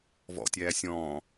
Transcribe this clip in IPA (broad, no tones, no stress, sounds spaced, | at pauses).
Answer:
v ɔ̰ tʲ æː sʲ ɔ̃ː